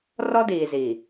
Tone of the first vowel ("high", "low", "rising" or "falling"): high